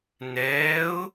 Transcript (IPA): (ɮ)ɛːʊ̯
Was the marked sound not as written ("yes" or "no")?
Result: yes